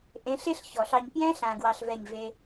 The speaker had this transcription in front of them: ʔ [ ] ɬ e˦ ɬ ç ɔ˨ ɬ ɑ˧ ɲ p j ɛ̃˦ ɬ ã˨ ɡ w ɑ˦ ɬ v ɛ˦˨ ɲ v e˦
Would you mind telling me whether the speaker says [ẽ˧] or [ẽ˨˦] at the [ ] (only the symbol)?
ẽ˨˦